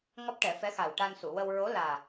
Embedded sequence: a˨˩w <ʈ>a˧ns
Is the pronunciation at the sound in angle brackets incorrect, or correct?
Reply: correct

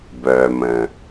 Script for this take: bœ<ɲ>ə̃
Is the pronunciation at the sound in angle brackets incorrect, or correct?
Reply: incorrect: m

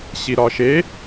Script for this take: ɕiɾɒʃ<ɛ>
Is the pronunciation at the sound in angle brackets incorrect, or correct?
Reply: incorrect: e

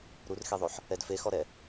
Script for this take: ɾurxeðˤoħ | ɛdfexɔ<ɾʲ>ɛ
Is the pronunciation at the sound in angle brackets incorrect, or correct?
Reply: incorrect: ɾ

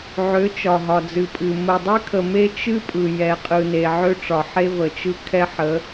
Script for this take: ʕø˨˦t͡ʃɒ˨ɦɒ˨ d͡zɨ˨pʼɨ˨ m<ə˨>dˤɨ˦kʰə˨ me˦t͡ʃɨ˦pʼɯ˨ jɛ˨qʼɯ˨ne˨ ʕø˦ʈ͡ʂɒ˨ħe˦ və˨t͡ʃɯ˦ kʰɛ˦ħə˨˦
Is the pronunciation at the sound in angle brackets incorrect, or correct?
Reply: correct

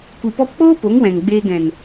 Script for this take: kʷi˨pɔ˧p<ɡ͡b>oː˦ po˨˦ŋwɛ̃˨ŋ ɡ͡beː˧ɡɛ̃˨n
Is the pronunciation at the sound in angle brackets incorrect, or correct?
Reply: incorrect: k͡p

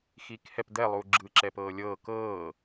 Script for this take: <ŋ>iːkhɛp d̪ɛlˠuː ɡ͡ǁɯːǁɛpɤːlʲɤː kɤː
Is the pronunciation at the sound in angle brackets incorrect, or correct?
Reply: incorrect: x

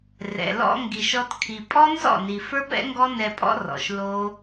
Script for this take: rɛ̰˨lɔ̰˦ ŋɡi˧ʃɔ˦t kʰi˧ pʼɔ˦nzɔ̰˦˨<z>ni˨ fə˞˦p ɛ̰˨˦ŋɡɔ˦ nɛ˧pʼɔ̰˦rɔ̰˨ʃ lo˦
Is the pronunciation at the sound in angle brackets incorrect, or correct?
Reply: incorrect: none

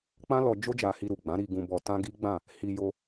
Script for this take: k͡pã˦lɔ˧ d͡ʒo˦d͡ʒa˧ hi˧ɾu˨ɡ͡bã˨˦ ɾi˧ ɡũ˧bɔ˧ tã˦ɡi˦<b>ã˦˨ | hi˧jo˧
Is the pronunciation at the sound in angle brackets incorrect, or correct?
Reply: incorrect: ɡ͡b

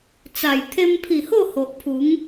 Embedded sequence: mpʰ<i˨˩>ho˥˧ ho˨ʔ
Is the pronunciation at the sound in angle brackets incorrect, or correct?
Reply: correct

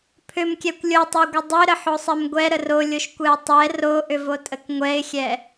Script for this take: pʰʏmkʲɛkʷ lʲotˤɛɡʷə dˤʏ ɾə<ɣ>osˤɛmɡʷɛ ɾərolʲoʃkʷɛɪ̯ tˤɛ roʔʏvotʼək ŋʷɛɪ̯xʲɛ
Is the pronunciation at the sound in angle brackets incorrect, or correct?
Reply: incorrect: ħ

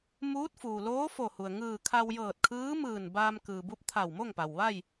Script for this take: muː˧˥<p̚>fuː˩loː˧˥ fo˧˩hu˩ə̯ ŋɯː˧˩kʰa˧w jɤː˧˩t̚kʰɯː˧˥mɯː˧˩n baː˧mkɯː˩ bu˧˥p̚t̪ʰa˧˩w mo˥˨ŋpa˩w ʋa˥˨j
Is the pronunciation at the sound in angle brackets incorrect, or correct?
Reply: incorrect: t̚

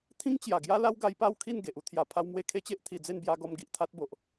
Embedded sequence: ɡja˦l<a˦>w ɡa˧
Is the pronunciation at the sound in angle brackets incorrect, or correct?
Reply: correct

